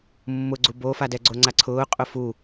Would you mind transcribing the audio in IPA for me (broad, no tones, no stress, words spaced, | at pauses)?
mːʊ ɡ͡ǀubofadɛ ɡ͡ǀoŋ͡ǀaǀʰʊː qʼʊfu